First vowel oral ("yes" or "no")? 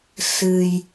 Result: yes